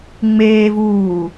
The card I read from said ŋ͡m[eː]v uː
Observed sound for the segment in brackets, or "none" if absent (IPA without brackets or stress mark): eː